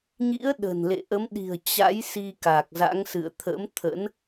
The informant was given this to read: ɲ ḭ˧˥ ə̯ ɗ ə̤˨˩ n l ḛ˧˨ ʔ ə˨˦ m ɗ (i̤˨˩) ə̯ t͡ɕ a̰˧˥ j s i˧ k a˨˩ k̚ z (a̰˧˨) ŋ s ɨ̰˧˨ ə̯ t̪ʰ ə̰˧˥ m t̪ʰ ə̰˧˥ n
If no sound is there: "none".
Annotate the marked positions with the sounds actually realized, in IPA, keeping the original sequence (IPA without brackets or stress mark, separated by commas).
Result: i̤˨˩, a̰˧˥